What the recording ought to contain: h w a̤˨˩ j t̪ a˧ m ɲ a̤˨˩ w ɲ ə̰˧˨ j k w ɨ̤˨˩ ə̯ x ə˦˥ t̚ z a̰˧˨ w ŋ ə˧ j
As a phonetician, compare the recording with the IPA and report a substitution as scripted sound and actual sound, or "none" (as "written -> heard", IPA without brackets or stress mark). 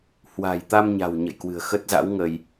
a̰˧˨ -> a̰˧˥